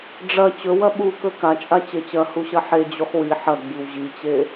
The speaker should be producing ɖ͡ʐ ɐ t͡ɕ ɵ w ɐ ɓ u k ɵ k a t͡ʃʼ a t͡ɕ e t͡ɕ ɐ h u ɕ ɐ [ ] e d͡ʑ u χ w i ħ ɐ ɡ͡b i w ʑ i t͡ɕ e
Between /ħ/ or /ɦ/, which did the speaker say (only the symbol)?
ħ